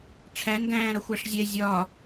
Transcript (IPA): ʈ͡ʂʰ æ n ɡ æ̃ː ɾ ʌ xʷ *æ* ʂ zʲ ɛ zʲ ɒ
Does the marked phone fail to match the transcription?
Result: no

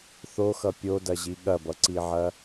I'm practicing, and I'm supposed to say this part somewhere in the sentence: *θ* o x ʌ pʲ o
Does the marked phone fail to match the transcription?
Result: no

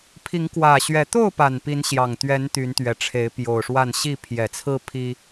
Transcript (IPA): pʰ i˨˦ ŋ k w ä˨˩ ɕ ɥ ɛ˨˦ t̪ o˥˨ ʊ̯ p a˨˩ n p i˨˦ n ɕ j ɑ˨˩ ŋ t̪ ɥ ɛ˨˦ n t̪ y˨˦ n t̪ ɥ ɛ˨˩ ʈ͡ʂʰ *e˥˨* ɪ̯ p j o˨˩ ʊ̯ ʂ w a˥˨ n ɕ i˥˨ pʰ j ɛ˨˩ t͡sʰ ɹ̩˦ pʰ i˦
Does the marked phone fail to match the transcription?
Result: yes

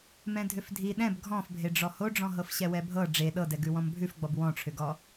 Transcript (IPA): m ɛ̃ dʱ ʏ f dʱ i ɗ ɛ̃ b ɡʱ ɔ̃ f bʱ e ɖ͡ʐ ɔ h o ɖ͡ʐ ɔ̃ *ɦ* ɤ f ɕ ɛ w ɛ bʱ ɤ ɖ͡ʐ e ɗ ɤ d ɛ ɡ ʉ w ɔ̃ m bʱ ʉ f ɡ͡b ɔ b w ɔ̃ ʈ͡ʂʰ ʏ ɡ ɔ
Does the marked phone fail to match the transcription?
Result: no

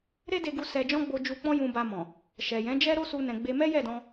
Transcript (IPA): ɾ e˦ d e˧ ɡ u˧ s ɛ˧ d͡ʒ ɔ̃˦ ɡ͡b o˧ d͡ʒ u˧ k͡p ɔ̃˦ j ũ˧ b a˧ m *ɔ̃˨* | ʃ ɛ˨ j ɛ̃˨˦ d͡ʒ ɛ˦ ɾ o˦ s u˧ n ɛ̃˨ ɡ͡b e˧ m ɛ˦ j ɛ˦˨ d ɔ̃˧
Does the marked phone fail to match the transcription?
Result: no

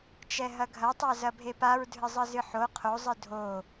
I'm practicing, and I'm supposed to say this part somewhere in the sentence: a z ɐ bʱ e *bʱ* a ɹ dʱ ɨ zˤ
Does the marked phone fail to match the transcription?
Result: yes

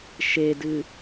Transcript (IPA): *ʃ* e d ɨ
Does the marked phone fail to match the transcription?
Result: no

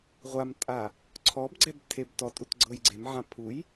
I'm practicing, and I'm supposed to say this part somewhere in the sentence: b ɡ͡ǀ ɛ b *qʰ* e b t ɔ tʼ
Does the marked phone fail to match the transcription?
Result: yes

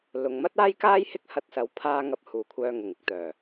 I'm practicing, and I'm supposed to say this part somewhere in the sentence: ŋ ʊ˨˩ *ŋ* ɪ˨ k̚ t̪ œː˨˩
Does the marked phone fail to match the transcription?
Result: no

